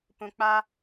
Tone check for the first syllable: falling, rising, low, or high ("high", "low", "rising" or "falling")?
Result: low